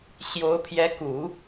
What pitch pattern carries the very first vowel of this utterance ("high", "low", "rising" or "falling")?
rising